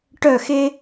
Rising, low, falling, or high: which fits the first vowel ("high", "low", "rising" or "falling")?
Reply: falling